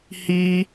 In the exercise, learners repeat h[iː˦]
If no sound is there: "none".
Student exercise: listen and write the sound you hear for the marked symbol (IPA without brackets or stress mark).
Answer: iː˦